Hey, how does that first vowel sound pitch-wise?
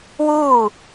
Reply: falling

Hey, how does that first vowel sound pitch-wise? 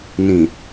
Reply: low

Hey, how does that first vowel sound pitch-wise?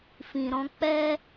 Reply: low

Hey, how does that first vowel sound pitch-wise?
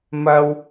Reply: high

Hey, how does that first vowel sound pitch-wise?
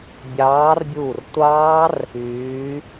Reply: rising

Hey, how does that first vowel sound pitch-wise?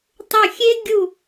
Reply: falling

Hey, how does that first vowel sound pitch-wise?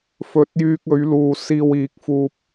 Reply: rising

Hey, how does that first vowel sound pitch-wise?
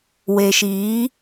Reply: low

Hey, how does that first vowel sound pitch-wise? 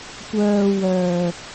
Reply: low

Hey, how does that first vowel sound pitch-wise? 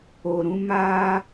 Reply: low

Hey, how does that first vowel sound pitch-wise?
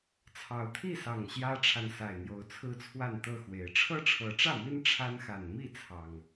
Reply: rising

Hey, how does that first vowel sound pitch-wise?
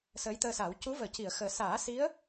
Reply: rising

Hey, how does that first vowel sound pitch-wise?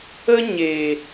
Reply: high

